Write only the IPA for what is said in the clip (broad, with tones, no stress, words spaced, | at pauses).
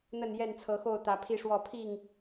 n̪ə˥˨njɛ˥˨nt͡sʰɤ˨˦xo˥˨ʊ̯ t̪ä˨˦pʰi˥˨ʂwɔ˥˨ pʰi˥˨ŋ